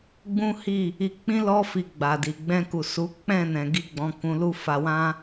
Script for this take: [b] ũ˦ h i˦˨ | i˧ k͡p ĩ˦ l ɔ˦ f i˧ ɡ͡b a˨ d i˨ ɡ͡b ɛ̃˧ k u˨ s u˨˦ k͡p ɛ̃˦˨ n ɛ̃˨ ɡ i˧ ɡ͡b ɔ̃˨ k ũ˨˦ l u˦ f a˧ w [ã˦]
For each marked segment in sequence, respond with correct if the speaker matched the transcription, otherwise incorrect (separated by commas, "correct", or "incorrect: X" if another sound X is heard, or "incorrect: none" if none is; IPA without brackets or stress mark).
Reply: incorrect: ɡ͡b, correct